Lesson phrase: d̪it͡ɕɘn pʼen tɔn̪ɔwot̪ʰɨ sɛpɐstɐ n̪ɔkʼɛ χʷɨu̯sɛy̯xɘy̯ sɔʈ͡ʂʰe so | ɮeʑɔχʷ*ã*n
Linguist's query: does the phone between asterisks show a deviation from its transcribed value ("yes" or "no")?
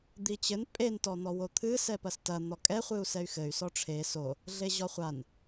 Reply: yes